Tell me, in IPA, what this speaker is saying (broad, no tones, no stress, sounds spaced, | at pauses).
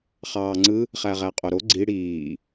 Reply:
χ ɑː ŋ͡ǀ ɯ | χ æ ʁ æ qʼ o ɾ o ɡ͡ǀ i ɽ iː